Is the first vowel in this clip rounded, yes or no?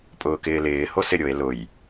yes